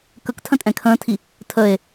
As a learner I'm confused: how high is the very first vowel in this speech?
mid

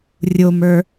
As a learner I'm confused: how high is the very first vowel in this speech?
mid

